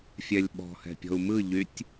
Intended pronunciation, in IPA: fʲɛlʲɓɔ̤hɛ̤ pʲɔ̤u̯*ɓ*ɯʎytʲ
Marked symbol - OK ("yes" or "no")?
no